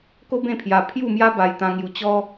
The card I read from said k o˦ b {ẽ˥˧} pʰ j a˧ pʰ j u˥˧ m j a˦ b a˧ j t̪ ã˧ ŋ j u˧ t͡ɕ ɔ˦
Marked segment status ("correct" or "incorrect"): correct